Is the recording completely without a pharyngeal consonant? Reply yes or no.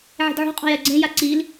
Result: no